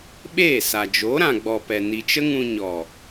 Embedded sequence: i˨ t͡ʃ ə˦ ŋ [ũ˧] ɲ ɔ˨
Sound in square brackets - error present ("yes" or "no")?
no